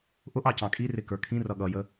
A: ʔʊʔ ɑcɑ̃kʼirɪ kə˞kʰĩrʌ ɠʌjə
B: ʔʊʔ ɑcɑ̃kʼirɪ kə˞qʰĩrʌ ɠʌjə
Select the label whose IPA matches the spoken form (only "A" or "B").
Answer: A